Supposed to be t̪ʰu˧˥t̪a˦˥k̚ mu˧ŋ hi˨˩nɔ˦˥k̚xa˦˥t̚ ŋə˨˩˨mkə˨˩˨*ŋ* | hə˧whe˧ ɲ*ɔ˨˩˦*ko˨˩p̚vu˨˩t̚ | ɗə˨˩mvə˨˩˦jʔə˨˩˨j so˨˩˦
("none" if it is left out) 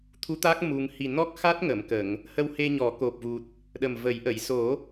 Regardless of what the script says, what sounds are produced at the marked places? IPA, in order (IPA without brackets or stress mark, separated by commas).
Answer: ŋ, ɔ˨˩˦